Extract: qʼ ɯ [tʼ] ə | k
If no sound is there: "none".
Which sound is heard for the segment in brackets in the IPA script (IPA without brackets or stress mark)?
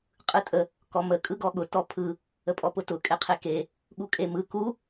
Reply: tʼ